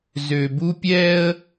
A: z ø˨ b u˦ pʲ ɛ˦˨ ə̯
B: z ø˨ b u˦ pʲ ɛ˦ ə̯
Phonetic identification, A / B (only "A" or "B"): B